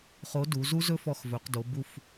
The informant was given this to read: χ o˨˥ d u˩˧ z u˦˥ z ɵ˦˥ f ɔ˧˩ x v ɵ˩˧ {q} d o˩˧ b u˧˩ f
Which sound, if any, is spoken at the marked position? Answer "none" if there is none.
q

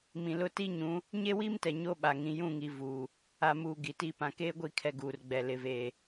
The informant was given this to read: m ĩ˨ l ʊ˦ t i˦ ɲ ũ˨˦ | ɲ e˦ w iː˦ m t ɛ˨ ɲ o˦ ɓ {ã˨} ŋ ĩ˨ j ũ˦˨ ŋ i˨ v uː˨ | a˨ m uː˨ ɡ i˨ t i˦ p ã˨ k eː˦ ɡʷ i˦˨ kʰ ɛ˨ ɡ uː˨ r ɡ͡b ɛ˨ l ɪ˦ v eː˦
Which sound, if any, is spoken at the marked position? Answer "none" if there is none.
a˨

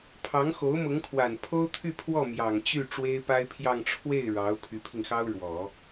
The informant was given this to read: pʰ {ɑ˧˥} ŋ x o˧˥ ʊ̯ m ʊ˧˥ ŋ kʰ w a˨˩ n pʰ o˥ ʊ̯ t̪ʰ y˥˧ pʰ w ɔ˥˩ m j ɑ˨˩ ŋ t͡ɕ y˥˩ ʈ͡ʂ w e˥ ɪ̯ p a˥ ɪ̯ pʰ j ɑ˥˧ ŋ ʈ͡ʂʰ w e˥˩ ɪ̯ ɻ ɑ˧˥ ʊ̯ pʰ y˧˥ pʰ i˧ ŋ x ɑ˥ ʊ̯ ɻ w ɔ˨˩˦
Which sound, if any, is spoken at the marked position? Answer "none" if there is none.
ɑ˧˥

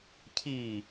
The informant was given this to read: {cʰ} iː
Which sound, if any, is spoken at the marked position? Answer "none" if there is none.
cʰ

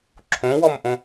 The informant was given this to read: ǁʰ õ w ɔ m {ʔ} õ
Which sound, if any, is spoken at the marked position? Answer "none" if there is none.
ʔ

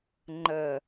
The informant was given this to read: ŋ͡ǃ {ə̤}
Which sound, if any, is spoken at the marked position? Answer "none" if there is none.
ə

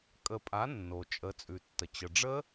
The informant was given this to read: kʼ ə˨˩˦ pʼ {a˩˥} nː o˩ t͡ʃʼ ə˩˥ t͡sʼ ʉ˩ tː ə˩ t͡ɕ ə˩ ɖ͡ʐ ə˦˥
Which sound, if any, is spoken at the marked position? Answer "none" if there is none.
a˩˥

